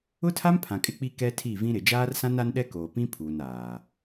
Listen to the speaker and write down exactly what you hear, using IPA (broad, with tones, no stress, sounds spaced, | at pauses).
ʊ˦ tʰ a˦ m pʰ ã˨ kʼ ɪ˦ k͡p i˦ k ɛ˦ tʰ i˦˨ v ĩ˦ ɾ ɪ˨ d͡ʒ aː˦ r s ã˦ n a˦ n ɗ ɛ˦ k oː˨ p ĩ˦ pʰ uː˨ n aː˨